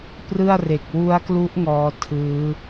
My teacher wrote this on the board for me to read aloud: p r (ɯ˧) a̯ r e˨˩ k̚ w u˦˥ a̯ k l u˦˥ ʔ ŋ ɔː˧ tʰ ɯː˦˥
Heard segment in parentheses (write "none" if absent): ɯ˥˩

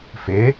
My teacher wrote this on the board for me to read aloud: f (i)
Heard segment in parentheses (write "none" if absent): ɪ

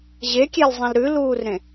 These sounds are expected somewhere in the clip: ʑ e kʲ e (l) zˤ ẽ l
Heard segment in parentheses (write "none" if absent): l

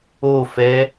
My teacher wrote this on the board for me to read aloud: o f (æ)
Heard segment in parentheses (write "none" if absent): ɛ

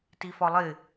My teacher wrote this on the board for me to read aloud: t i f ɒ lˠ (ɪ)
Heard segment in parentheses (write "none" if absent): ɪ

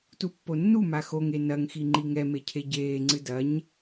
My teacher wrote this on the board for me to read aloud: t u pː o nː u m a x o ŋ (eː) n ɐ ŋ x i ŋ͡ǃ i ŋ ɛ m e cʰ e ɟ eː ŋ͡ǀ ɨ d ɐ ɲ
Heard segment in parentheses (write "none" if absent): e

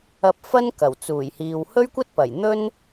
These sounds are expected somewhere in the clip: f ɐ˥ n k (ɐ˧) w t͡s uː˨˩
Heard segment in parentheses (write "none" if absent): ɐ˨˩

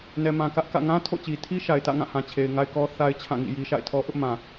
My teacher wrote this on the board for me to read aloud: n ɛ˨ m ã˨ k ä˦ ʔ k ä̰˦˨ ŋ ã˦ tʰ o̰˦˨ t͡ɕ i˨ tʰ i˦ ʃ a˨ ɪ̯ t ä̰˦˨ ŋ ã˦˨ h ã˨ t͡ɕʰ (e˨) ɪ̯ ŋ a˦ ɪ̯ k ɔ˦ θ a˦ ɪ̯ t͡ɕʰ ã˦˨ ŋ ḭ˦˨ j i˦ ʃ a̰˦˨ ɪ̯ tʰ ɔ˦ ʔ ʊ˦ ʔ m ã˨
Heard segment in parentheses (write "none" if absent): e˨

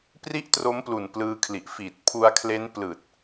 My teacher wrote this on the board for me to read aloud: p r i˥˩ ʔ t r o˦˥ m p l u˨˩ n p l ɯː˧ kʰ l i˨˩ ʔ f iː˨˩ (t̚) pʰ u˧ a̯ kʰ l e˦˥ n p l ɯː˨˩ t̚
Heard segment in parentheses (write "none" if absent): t̚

